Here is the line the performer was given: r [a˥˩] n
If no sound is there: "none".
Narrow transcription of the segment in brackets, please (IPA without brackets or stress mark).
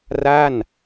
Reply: a˥˩